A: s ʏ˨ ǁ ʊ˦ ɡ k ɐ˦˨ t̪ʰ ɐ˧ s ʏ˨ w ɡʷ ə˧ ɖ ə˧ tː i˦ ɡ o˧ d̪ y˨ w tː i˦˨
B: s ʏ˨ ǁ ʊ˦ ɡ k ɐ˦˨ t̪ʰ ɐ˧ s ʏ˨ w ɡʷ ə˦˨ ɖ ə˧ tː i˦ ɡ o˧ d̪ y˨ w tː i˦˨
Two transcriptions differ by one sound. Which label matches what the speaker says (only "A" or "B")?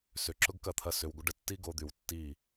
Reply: A